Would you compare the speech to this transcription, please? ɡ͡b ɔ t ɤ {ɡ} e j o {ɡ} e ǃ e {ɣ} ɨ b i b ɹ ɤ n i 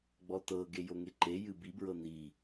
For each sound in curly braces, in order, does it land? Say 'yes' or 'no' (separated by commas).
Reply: yes, no, no